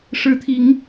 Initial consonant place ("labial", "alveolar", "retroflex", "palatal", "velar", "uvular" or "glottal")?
retroflex